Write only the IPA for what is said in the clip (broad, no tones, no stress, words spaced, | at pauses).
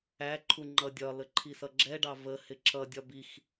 æǃʰu ŋ͡ǃʌdʲɒlə ǃʰisʌɡ͡ǁɛɖɑ və hɪǁʌdʲɒ bix